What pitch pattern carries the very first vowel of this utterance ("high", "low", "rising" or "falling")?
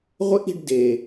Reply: high